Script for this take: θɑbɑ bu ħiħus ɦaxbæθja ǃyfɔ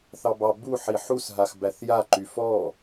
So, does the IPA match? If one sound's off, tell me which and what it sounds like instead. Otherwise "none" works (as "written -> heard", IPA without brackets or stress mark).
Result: none